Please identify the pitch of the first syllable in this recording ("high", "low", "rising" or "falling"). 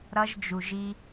high